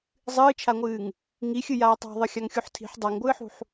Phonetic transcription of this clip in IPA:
zˤ ɨː t͡ʃʰ a ŋʷ ɨː ŋ | ŋ i xʲ ɨ j aː tˤ a̤ ðˤ ɨ xʲ a ŋ xʲ u ħ tʰ i̤ ħ dˤ a ŋ ɡʷ ɨː ħ ṳ ħ

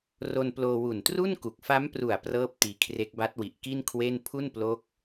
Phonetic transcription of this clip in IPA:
r o˧ n p l oː˧ w u˨˩ n t r u˥˩ n k u˨˩ k̚ f a˦˥ m p r u˨˩ a̯ p r ɤː˥˩ p̚ t iː˧ kʰ r e˦˥ k̚ b a˦˥ t̚ w i˨˩ ʔ k i˥˩ n kʰ w e˥˩ n pʰ u˥˩ n p l o˦˥ k̚

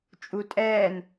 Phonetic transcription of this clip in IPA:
t͡ʃʼ u tʼ ɛː n

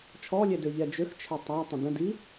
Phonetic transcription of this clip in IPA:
t͡ʃʰ ɔ lʲ ɛ d ø ʎ ɛ d͡ʒ ø x t͡ʃʰ ɛ tˤ a tˤ ə̃ d ə̃ d i

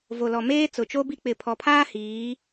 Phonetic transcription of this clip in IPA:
v o˨ l ɔ˨ m eː˦ t͡s ʊ˨ t͡ʃ o˦ b i˦ k͡p ɪ˨ pʰ ɔ˨ pʰ aː˦ h iː˨˦

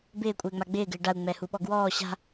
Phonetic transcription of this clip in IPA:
b ɪː kʷʼ ɪː ŋ͡m a ɡ͡b ɪː ɡ ɪː ɖ a u̯ ŋ͡m ɛ h u ɓ ɔ ɡ w ɔː ɕ a̤

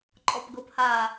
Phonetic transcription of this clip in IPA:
ǃʼ ɔ p ɡ ɤ p h a

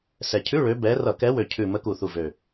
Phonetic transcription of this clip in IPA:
s ɛ˨˩ cʰ ʉ˧˥˧ ɭ ø˨˦ b ɛ˨˦ r ʌ˧˩˧ k ɛ˨˦ w ø˨˩ cʰ ʉ˨˩ m ə˨˦ k u˨˩ θ u˨˩ v ø˨˩

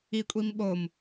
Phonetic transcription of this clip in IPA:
i kʷʼ i m ɓ o m

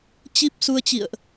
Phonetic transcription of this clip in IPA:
t͡ɕ i˦˥ p̚ s u˧ ə̯ t͡ɕ ḭ˧˨ ə̯ ʔ

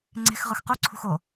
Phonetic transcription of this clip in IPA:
ŋ͡ǀ e̤ x ʁ ɯ x q u ǀʰ ṳ x o

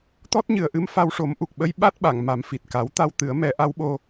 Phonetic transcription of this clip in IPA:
t̪ ɔ˦˥ t̚ ɲ ɨ˨˩ ə̯ ʔ ɨ˧ m f a˧ w ʂ o˨˩˦ m ʔ u˨˩ k̚ ɓ ə˧˥ j ɓ a˦˥ t̚ ɓ a˨˩˨ ŋ m a˨˩˦ m f i˨˩ t̚ k a˨˩˦ w t̪ a˧ w t̪ ɨ˨˩˦ ə̯ m ɛ˨˩˦ ʔ a˧˥ w ɓ o˧

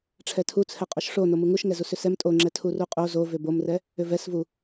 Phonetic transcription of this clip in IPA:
ʈ͡ʂʰ ɛ tʰ u t͡sʰ ɛ qʼ o ʃ ʂ o n o m u ŋ u ʃ ŋ ɛ z u s ʏ s ɛ m tʼ o ŋ͡ǁ ɛ tʰ u r u qʼ o z o v ʏ b o m r ɛ | ʏ v ɛ s v u

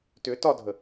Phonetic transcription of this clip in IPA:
t ʏ t ɒ dʱ ə

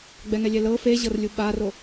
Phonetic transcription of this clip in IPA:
ɡ͡b ɛ ŋ ɛ lʲ ɛ l ɤ f e ʑ ɤ r lʲ u ɓ a r o

